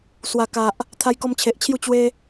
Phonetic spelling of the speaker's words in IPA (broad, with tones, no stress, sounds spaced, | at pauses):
s w a˨˩ k a˨ ʔ | t̪ʰ a˧ j k ɔ˧ m t͡ɕʰ e˨ ʔ t͡ɕʰ j u˥˧ t͡ɕ w e˧